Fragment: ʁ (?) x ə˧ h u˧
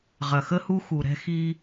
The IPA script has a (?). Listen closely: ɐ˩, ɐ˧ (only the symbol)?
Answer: ɐ˩